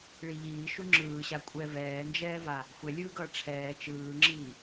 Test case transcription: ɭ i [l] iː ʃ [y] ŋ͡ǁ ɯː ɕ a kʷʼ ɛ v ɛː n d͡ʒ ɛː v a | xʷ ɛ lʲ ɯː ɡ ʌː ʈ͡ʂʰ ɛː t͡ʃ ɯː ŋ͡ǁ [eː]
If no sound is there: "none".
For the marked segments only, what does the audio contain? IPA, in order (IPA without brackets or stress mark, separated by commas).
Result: ʎ, u, iː